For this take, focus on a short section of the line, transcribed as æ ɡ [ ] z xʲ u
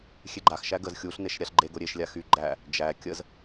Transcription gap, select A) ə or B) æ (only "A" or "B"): A